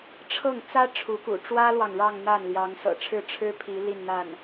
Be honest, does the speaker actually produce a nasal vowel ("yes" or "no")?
no